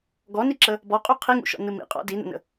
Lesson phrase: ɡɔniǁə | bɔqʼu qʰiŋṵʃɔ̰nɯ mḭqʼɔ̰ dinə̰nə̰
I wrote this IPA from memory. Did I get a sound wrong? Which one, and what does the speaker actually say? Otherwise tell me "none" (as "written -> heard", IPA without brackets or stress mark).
none